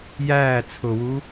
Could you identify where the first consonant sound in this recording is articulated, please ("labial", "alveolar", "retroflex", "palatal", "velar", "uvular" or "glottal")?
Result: palatal